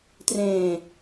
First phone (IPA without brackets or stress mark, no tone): t